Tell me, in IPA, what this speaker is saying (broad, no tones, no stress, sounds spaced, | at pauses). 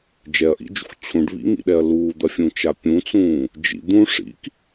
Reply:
d͡ʒ ɛ ɐ̯ ʔ ḭ d͡ʒ u k t͡ɕʰ ũ ɖ β ḭ ŋ ḭ ɗ ɛ ɐ̯ l uː d̪ ɐ fʲ ũ t͡ʃ a pʲ ũ t͡s ũː | d͡ʒ ḭ d̪ ũ ʂ ḭ k